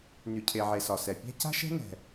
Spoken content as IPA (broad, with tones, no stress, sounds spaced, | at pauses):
n y˩ cʰ e˩ ʕ e˩ s ɒ˩ s ɛ˩ pʲ æ̤˥ c a̤˥ ʃ ɛ̤˥ n ɛ̤˩